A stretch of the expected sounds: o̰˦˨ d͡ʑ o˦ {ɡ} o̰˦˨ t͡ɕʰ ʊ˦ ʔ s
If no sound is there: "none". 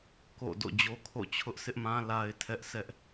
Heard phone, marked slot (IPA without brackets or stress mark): kʰ